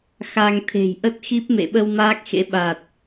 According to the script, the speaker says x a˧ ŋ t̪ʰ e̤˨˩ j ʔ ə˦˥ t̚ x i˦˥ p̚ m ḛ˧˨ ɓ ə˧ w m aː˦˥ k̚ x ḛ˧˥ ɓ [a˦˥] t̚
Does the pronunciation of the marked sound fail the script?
yes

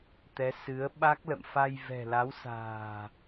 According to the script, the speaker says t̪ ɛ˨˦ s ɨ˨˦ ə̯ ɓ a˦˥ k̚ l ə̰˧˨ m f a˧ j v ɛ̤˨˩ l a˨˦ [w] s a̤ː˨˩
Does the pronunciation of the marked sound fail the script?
no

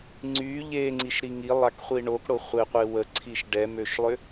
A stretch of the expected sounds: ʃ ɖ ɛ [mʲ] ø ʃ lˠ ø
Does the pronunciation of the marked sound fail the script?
yes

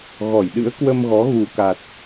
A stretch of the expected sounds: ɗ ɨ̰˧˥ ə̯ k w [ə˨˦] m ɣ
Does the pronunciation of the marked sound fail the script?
yes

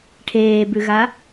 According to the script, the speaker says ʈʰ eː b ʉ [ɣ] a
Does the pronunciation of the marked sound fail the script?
no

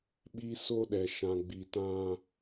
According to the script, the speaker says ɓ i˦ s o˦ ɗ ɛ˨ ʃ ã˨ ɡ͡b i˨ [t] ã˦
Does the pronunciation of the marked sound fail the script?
no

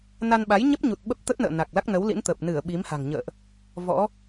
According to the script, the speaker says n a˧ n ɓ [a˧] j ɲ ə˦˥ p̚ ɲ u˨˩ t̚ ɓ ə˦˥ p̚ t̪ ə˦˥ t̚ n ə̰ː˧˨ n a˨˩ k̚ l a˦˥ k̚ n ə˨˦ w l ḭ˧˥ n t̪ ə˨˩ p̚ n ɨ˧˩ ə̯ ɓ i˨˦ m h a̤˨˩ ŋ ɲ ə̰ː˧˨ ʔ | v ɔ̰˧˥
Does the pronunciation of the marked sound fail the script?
yes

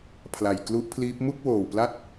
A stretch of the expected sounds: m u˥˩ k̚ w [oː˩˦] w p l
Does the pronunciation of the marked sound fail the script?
yes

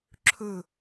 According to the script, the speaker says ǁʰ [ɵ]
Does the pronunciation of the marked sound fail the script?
no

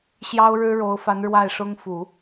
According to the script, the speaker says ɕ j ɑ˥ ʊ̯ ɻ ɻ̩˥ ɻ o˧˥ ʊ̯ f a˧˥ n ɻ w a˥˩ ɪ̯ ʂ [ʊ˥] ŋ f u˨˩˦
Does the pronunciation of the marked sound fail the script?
no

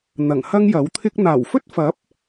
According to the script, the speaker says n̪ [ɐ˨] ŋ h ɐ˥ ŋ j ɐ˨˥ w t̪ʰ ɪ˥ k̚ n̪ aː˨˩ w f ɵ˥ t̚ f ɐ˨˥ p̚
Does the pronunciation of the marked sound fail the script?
yes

